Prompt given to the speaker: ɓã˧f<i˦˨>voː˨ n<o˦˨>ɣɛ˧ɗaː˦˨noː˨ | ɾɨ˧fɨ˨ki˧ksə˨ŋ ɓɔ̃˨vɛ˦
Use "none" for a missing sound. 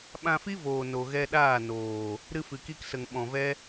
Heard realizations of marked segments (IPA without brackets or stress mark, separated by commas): i˦, o˨